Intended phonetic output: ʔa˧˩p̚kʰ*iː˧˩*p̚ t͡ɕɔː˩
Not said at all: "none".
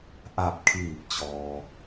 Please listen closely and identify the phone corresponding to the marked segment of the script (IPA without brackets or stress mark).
iː˧˩